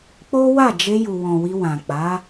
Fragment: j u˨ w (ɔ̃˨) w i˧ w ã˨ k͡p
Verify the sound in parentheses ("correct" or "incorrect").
correct